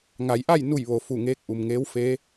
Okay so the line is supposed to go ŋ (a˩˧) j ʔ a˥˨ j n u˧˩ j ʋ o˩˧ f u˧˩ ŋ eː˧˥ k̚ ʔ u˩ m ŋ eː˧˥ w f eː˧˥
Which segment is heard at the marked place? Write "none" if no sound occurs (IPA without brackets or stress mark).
a˩˧